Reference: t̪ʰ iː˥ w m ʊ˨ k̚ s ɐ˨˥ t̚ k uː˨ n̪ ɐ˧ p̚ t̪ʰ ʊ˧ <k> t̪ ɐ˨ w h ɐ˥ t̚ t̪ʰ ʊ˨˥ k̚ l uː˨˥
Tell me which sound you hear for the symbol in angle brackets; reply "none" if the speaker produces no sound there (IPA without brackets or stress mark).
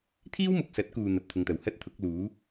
ŋ